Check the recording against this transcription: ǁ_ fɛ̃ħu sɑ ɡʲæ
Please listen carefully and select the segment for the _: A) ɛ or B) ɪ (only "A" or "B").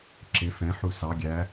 B